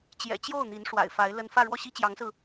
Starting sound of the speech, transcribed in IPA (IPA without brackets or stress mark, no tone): t͡ɕ